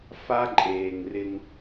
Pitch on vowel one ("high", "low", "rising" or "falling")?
high